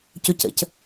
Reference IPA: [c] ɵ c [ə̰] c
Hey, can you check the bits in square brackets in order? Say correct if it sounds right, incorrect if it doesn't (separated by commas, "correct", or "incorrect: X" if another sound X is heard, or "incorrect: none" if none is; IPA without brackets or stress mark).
correct, correct